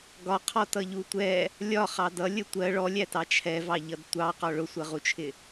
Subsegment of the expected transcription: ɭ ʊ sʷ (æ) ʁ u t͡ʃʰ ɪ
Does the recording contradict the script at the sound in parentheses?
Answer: yes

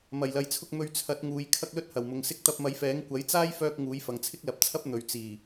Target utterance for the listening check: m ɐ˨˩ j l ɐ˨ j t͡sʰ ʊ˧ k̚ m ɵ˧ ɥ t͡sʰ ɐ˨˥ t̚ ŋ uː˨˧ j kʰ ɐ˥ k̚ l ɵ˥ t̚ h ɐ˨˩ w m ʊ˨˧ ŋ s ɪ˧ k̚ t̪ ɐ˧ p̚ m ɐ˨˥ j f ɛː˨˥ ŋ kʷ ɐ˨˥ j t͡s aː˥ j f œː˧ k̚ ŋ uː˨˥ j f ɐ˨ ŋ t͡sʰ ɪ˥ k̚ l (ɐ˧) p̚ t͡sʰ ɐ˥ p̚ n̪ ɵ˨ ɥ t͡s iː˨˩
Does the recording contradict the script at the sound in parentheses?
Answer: yes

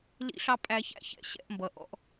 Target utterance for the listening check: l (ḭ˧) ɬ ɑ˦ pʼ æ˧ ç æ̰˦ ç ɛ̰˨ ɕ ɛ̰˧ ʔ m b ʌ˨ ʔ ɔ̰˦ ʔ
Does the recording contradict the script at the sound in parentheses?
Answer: yes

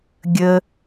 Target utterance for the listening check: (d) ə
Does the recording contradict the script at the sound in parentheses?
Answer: yes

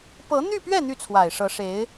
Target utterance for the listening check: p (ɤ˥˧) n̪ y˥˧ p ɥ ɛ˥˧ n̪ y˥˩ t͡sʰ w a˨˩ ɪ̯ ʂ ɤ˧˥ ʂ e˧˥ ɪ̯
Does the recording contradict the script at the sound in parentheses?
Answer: yes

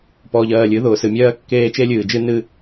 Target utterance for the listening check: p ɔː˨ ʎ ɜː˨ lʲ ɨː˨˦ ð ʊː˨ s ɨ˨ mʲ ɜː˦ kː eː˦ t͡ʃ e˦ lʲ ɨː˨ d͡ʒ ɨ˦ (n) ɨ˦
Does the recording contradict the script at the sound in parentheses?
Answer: no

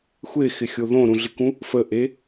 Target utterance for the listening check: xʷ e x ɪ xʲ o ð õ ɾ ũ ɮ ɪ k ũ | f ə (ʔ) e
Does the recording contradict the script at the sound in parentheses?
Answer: no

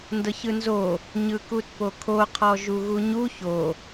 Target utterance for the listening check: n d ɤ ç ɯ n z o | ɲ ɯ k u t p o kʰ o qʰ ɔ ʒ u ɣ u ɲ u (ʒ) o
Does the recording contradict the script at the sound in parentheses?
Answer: yes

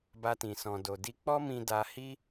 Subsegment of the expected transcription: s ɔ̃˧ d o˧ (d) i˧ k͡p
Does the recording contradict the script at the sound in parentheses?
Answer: no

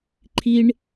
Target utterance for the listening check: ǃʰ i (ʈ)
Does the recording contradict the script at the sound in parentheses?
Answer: yes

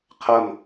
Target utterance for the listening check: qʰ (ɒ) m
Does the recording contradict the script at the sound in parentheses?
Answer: yes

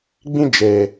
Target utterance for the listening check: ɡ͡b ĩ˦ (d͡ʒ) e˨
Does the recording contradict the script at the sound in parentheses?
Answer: no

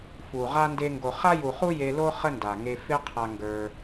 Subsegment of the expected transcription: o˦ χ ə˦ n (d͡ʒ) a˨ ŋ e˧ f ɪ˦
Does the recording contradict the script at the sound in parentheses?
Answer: yes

